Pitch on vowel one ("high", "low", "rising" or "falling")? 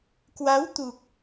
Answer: rising